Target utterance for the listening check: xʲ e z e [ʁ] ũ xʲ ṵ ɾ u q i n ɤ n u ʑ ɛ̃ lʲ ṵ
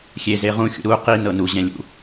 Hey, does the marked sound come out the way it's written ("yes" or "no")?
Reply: yes